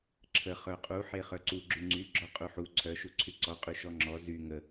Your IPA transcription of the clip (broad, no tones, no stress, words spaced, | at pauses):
ǁʰə χœqʼu ħeχœǀu ɡ͡ǁyŋ͡ǀy ɡ͡ǁɔqʼuħu ǀʰœ ʃuǀʰyǀɔ qʼyʃɔŋ͡ǁɔ zy ŋə